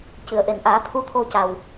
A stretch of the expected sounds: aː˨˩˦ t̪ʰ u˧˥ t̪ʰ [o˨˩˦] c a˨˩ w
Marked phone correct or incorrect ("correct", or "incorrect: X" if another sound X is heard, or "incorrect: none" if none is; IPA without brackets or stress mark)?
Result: incorrect: o˧